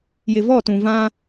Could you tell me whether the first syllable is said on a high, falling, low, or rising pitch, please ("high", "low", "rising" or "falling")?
low